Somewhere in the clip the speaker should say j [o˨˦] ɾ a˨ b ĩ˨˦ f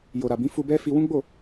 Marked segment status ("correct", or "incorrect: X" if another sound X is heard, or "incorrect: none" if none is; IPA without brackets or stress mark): incorrect: o˨